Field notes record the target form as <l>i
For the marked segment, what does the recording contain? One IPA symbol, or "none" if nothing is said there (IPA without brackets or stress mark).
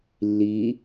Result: lː